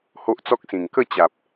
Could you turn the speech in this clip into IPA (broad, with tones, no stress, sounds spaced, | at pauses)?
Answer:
h o˦ ʔ t͡s ɔ˦ k̚ s ĩ˨˩ ŋ k ə˥˧ t͡ɕ a˨ p̚